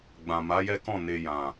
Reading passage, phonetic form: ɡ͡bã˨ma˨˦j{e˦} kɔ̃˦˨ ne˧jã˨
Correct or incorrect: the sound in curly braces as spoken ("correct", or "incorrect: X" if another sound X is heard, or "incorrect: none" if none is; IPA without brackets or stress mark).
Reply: incorrect: ɛ˦